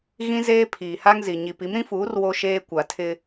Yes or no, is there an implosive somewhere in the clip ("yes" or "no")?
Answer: no